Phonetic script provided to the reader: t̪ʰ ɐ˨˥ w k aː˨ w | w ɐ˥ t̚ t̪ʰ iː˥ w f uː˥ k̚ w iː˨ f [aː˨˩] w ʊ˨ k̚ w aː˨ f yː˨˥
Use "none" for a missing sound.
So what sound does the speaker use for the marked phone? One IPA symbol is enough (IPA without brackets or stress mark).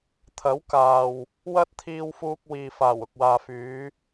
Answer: aː˨˩